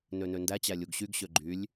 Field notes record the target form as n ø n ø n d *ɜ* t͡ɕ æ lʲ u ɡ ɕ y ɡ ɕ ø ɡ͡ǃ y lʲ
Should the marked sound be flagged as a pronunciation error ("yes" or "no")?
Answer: yes